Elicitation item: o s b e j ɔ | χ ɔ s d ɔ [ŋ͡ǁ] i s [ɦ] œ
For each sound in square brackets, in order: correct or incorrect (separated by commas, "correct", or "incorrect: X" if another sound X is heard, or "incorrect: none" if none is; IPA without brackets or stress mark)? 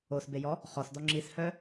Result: correct, incorrect: h